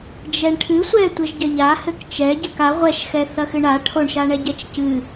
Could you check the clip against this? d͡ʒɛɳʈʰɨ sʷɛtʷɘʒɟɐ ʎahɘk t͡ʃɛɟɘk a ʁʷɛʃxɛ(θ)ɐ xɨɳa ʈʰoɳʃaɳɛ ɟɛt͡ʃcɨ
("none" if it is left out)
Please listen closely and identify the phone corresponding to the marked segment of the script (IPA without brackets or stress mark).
θ